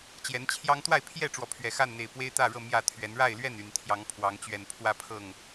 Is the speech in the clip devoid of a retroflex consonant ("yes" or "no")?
no